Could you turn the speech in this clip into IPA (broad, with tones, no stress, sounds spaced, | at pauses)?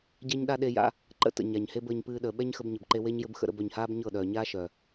ɟ ɛ˦ ɲ ɗ a˦ ɗ e˧ j a̰˧ | ǃ ə̰˧ t ə̰˨ ɲ a˨ ɲ h e˦ b əː˨ ɲ p ɨː˧ ɗ əː˨ ɓ ɛ˦ ɲ x ə˧ b ɲ ɘ˨ b ǃ e˧ w e˦ ɲ j ɘ˦ b x ə̰˧ ɾ ə̰˧ b œ˨ ɲ h aː˦ b ɲ ɤ˦˨ ɗ œː˨ ɲ aː˦ ʃ œ˨